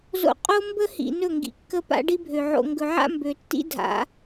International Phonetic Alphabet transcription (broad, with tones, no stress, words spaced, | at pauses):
zo̰˦ qʼo˦ mbə˦hḭ˨ nɵ˦˨ŋɡḭ˨kːə˦ pa̰˦ɖi˦bʱø˨ ʕo̰˨ŋɡɵ˨ʕa̰˦ mbø˨tːḭ˦ dʱa̰˨˦